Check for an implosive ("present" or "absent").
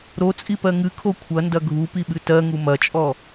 present